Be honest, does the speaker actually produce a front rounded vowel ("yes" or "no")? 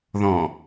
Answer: no